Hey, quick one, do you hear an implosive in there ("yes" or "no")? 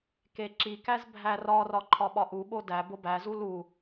yes